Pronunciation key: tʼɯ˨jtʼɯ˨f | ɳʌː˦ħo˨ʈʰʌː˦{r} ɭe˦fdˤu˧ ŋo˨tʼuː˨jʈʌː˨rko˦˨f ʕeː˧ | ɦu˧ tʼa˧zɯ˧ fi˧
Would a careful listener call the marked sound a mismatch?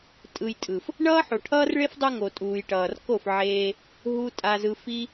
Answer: no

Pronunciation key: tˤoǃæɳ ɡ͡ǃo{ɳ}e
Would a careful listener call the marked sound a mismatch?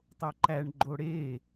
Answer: yes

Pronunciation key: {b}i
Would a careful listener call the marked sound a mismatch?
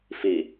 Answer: yes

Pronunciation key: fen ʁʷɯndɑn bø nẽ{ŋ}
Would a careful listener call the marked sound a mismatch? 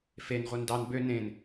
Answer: yes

